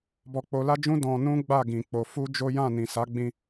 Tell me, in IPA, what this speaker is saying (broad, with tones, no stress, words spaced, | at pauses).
bɔ˧k͡po˧la˦d͡ʒũ˦ dɔ̃˧nũ˦ ɡ͡ba˦˨ɡĩ˨k͡po˨ fu˧ d͡ʒo˦ jã˦˨nĩ˨ sa˨˦ɡ͡bĩ˧